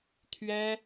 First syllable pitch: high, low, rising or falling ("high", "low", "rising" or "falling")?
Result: high